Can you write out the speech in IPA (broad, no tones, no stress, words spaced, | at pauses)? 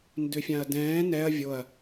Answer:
ndøfʲãɐ̯dɛ̃ː nɛɐ̯ vʲoɐ̯